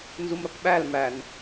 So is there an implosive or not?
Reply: yes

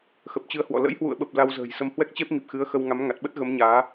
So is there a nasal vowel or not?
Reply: no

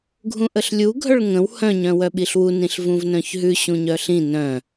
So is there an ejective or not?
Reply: no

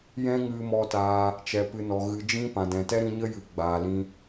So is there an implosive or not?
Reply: no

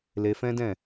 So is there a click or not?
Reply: no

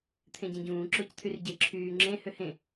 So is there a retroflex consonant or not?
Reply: no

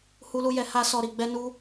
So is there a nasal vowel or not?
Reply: no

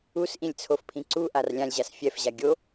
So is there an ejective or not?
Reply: no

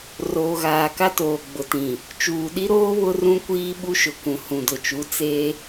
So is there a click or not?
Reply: no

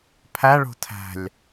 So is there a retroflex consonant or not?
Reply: yes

